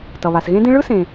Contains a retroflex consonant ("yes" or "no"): yes